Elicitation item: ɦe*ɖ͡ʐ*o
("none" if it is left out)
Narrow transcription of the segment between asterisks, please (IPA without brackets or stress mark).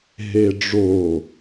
ɖ͡ʐ